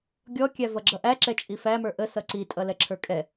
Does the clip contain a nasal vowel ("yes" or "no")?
no